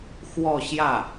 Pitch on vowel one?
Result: falling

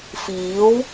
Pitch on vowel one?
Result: rising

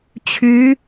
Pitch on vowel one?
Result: rising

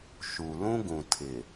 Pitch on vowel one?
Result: low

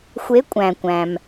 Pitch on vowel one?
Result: rising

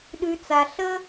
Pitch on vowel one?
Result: low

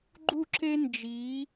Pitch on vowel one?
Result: falling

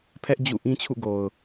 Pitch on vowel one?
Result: high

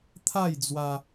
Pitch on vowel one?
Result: falling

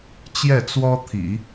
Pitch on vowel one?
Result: falling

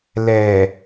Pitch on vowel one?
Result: low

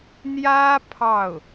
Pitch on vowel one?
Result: high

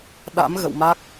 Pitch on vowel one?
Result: rising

